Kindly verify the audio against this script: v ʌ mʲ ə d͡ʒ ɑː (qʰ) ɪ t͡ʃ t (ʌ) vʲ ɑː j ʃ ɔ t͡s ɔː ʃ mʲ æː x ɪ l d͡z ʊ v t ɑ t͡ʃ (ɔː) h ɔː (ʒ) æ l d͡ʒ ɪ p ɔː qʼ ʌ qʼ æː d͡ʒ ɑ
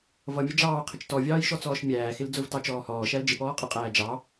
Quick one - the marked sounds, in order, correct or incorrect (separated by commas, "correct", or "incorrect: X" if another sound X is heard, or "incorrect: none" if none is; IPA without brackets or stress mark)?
correct, incorrect: ɔ, correct, incorrect: ʃ